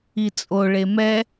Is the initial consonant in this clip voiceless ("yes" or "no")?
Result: yes